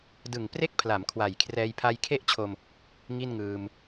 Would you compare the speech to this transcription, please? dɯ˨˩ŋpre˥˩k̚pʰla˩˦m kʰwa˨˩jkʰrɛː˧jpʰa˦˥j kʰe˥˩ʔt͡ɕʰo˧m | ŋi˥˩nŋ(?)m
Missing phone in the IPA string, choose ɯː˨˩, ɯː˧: ɯː˧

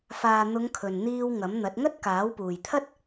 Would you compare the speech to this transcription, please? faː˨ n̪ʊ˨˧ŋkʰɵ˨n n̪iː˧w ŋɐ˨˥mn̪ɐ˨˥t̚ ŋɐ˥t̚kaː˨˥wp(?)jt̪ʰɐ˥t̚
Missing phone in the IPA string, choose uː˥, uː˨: uː˨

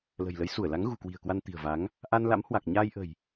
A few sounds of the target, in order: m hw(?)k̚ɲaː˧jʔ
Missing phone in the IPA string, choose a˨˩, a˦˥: a˨˩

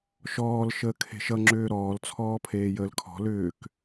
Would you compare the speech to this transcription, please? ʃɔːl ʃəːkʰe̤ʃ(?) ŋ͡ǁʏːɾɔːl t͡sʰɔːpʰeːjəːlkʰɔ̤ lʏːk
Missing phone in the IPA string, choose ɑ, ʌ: ʌ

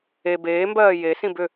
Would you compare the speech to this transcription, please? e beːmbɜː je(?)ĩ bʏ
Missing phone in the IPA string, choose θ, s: s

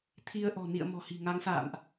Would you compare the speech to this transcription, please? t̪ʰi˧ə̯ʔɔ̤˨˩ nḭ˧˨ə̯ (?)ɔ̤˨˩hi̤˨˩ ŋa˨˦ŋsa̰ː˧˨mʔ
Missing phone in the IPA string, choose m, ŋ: m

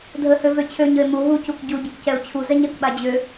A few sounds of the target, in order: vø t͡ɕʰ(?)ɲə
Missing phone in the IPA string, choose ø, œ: ø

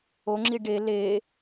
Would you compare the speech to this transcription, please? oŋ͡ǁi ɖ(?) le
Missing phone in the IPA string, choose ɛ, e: e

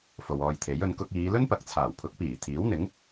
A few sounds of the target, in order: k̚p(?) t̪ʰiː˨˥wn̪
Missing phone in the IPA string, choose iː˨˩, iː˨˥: iː˨˩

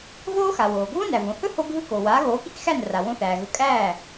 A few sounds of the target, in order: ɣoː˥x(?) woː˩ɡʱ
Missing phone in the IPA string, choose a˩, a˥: a˩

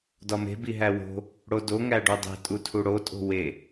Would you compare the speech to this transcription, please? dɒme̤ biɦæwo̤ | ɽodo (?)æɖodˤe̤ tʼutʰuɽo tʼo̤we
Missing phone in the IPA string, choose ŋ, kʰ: ŋ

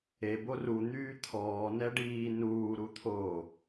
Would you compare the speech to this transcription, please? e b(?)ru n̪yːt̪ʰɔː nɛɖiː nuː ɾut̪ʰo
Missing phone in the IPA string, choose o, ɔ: o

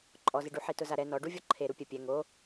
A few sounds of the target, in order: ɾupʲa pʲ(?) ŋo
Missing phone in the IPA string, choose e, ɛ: ɛ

